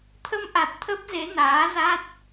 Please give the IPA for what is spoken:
t̪ʰ ə˧ m ʔ a˨˩ t̚ t̪ʰ ə˦˥ p̚ z e˨˦ n aː˨˦ z a˦˥ t̚

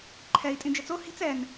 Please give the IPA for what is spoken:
ǃʰ ɛ i̯ tʼ ĩ d͡ʒ ɘ t͡s o h i̤ t͡s ɛ n

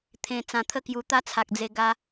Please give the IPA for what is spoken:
t̪ʰ ẽ˧ t͡s ã˧ t̪ʰ ə˥˧ k j u˧ t̪ a˦ t͡sʰ a˨ k̚ d͡z e˧ ɡ a˧

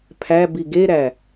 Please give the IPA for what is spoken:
pʰ æ b i ɡ e ɾ æ

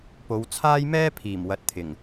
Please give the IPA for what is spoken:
p o˨˧ w t͡sʰ aː˥ j m ɛː˥ pʰ iː˨˩ m w ɐ˨˥ t̚ t̪ʰ ɪ˨˩ ŋ

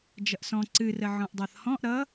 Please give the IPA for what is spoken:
d͡ʒ ʌ ʔ s ɔ̃ ǀ ɨ r ə ʕ ɔ̃ ʔ dˤ ʌ θ h ɔ̃ ʔ ɾ ʌ

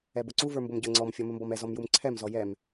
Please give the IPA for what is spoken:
ɛ b ʊ ǀ u v ə˞ m b ʊ m ɟ ə˞ ŋ͡ǀ ɔ m fʲ ɔ m ə m b ɔ m ɛ z ɔ m j u m ǀʰ ɛ m z ɔ j ɛ m

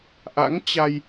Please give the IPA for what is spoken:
ʔ a̰˧˥ ŋ t͡ɕ a˧ j

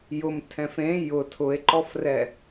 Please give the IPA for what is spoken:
j ʊ m tʰ ɛ̃ f ẽ j ʊ tʰ ʊ e̯ ǃ ɔ f r ɛ

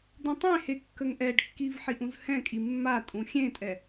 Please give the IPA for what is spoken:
d̪ ũ tˤ ẽ h e kː ə ŋ ʔ ɛ ɖ kː i v ħ i ʔ ũ z h ɛ̃ kʼ i mː a tʼ ũ xʲ ẽ tʼ ɛ

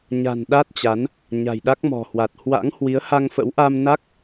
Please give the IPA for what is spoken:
ɲ a̤˨˩ n ɗ a˦˥ t̚ t͡ɕ a˨˦ n | ɲ a̤˨˩ j ɗ a˦˥ k̚ m ɔ̤˨˩ h w a˨˩ t̚ h w a̰˧˥ ŋ h w i˨˦ ə̯ h a˧ ŋ f ə̰˧˥ w ʔ a˧ m n a˦˥ k̚

